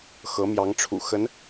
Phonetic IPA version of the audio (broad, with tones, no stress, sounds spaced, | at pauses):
x ɤ˧˥ m j ɑ˧˥ ŋ ʈ͡ʂʰ ṵ˨˩ x ə˧˥ n